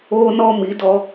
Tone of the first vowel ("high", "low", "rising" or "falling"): high